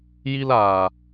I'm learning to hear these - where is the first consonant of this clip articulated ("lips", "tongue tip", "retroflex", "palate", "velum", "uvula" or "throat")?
palate